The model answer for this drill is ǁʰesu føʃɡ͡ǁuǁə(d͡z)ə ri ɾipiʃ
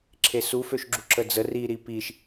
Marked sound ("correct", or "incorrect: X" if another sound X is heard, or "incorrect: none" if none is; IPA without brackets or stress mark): correct